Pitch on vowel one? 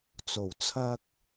low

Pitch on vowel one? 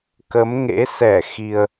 rising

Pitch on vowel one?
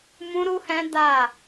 high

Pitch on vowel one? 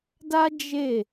high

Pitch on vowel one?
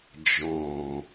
low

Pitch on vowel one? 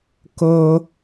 high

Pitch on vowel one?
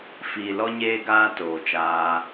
low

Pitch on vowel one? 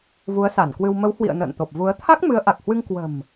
rising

